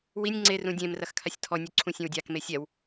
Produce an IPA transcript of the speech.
w i nʲ ŋ͡ǀ e r ũ dʲ ẽ m r ɐ x kʰ a sʲ tʰ ɔ nʲ u ǀʰ ũ sʲ ẽ w dʲ a k m e sʲ ɛ w

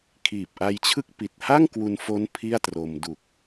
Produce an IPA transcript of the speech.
kʰ iː˨˩ p̚ ʔ a˧ j t͡ɕʰ ɯ˥˩ k̚ p i˨˩ t̚ h a˥˩ ŋ k w u˧ n f o˦˥ n pʰ i˥˩ a̯ t r o˧ m d u˨˩ k̚

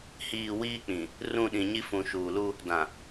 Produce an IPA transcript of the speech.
h iː˨ w iː˦ k͡p ĩ˨ | r ũ˦˨ ɗ ĩ˨ ɲ i˦ f ũ˨ ʃ uː˨ l u˦ | d ã˨

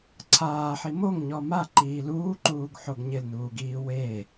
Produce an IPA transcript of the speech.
ǀʰ aː ħ i m o ŋ ɲ ɔ m a ǃ iː l uː ǃ uː ɡ ħ o ɡ ɲ ɪ l n uː ɡ iː w e

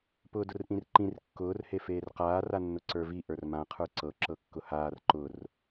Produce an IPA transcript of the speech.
p ʊː d ʊ r ʔ ĩ r ǃ ĩ r kː ʊː r h e f eː r q aː r a nː ʊ ǀ ə˞ v i ʔ ə˞ r m ã qʰ ə˞ ǀ ɤ ǁ ɤ kː ʊ h aː r ǃ ʊ r

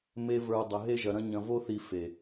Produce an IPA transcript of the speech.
m e˦ v ə˞˧ dˤ ə˨ ɦ e˧ ʒ ɐ˨ ɾ ɐ̃˧ ɲ ɐ̃˧ v o˦ θ i˧ f e˨

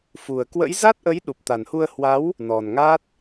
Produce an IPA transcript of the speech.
f u˨˩ ə̯ k w ə̰˧˥ j z a˦˥ t̚ ʔ ə˨˦ j ɗ u˨˩ p̚ t̪ a˨˩ n h u˧ ə̯ h w a˨˦ w | n ɔ˨˩ n ŋ a˦˥ t̚

